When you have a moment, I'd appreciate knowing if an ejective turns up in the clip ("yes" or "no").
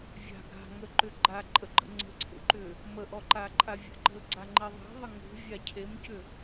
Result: yes